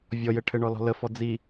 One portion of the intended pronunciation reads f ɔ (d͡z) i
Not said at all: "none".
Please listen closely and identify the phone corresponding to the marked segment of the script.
d͡z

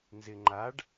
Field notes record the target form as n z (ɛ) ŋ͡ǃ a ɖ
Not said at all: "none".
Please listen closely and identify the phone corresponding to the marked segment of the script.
ɪ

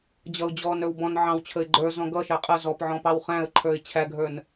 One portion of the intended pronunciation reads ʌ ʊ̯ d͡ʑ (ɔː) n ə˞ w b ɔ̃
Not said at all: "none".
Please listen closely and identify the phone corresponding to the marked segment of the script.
ɔː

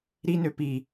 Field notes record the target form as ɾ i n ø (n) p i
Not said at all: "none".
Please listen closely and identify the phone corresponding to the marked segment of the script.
none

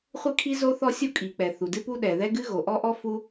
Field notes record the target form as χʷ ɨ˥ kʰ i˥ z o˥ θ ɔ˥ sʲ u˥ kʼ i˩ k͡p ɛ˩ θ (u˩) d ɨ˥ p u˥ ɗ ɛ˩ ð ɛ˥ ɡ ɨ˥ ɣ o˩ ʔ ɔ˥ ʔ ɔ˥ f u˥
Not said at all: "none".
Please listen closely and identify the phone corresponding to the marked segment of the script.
u˩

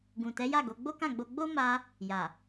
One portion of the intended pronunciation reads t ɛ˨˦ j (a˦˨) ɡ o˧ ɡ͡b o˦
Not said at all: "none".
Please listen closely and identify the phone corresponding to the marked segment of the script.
a˦˨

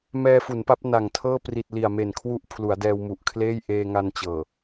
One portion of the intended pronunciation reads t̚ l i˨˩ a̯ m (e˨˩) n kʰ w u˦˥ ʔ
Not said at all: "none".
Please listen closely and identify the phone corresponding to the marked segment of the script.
e˨˩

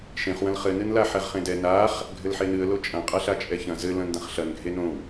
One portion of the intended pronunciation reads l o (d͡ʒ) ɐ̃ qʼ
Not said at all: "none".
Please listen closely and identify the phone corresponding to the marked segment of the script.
t͡ʃʼ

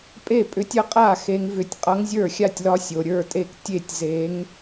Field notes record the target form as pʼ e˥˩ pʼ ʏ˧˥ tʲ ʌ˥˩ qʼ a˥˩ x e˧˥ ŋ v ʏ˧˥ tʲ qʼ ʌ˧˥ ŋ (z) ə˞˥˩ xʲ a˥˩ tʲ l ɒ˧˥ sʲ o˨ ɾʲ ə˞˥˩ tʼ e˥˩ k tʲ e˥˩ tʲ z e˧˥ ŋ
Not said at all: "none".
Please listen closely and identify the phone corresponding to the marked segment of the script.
zʲ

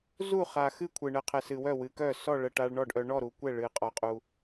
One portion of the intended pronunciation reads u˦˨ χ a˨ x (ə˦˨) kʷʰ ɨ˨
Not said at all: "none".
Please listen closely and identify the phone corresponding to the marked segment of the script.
ɨ˦˨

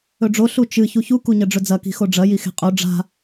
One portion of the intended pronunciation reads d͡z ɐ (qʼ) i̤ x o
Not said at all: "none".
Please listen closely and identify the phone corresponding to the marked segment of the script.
k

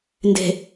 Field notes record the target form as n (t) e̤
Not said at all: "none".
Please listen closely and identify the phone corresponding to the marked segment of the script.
d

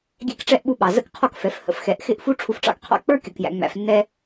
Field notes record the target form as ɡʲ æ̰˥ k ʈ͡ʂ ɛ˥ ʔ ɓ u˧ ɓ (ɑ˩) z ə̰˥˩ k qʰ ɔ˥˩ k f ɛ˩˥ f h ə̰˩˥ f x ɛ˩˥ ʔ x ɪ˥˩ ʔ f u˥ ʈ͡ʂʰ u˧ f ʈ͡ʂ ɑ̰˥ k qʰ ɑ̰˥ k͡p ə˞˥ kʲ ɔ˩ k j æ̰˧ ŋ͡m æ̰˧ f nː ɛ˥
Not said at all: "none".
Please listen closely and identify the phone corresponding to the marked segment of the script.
ɑ˩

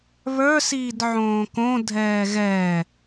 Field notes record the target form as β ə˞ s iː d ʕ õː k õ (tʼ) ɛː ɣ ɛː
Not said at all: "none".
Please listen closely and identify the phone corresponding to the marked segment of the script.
dʱ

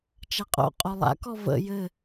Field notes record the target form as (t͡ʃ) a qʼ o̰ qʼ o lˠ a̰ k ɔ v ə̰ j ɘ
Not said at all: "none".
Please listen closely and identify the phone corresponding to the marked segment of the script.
t͡ʃ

